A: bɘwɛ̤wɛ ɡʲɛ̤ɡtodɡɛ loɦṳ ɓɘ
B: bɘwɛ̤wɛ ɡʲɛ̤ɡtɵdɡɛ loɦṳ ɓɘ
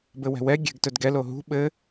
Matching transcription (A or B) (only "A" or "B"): B